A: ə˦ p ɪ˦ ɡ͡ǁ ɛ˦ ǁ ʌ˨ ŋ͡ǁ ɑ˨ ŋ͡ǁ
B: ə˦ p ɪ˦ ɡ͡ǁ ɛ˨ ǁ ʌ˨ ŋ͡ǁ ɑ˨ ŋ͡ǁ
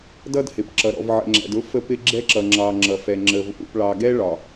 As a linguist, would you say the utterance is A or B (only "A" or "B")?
A